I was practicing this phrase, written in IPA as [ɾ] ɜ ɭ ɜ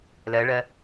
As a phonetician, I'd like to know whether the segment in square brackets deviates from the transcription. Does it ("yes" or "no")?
yes